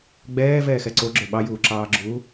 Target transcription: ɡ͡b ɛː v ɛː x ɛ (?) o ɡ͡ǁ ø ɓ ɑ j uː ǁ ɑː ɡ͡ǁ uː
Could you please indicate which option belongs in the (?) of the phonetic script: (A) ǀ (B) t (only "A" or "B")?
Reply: A